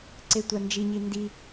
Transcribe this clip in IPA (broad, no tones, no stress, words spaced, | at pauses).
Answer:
ǀetʷand͡ʒiɲi ndi